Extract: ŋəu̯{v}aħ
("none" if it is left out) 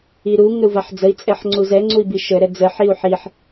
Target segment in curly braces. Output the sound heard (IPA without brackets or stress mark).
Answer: v